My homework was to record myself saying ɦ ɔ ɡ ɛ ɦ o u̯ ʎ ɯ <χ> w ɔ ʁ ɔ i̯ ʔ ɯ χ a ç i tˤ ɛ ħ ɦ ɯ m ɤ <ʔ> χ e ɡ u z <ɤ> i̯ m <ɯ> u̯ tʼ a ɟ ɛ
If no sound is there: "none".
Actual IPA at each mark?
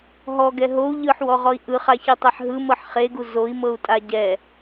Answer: ħ, ħ, o, ɤ

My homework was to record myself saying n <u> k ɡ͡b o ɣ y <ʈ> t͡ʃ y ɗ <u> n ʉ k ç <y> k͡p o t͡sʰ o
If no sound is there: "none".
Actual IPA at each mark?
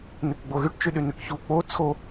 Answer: ʉ, ʈ, y, u

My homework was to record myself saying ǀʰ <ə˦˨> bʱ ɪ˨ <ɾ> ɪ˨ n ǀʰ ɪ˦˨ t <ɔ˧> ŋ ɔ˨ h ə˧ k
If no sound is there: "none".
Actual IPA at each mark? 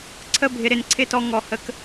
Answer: ə˦˨, ɾ, ɔ˧

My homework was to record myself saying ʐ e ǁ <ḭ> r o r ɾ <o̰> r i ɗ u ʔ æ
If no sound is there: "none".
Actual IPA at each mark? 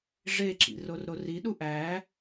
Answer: ḭ, o

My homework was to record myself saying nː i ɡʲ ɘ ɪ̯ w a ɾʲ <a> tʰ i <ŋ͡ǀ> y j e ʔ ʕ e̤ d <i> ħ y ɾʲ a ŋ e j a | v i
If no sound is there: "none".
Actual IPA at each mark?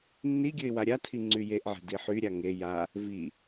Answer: a, ŋ͡ǀ, i

